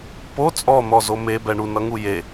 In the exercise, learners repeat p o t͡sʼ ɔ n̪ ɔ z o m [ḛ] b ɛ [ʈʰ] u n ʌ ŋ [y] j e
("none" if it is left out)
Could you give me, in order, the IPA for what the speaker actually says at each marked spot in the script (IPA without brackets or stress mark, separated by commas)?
e, ɳ, u